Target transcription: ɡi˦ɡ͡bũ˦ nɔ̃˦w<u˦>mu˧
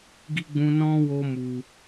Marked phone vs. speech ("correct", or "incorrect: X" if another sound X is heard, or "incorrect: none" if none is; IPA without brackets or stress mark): incorrect: o˦